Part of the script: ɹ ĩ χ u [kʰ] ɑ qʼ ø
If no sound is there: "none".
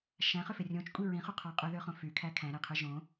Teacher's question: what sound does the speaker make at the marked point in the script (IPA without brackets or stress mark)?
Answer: qʰ